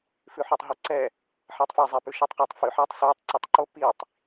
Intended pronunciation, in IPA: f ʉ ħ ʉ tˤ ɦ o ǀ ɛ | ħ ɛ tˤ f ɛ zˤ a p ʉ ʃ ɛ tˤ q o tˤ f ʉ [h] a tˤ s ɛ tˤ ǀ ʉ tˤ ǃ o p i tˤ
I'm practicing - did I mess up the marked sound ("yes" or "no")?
yes